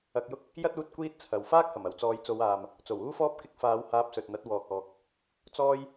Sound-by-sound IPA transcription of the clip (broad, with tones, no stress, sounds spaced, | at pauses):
ɐ˧ k̚ j ʊ˥ k̚ | j ɐ˥ t̚ uː˧ t̚ kʷ iː˥ t̚ t͡sʰ ɐ˨ w f aː˥ k̚ h ɐ˨˩ m ɐ˨˩ w t͡s ɔː˨˧ j t͡s o˨˧ w aː˨ m | t͡s o˨˩ w uː˥ f ɔː˥ p̚ k ɪ˧ k̚ f aː˨˧ w h aː˧ p̚ s ɵ˨ t̚ n̪ ɐ˨˥ t̚ w ɔː˨ k̚ ɔː˨ k̚ | t͡s ɔː˥ j